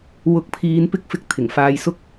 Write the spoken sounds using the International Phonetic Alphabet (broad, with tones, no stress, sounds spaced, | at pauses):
w ʊ˨˥ k̚ pʰ iː˨˧ n p ɪ˧ k̚ f ɪ˨ k̚ t̪ʰ ɪ˨˩ ŋ f aː˧ j s ʊ˥ k̚